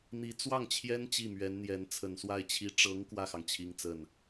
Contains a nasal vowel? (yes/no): no